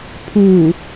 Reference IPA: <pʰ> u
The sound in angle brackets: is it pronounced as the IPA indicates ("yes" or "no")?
yes